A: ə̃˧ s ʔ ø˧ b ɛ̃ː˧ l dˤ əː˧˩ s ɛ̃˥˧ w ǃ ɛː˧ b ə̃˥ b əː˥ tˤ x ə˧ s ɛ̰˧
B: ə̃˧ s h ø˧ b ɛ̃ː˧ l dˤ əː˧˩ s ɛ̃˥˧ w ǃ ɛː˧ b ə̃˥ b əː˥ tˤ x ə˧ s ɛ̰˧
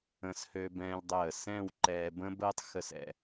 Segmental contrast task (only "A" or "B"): B